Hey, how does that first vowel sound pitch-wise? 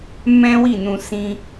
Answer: high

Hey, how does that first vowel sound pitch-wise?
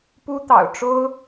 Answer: high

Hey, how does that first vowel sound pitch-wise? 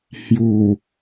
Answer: low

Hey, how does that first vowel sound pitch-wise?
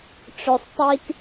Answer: low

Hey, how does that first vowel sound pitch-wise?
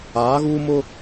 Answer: rising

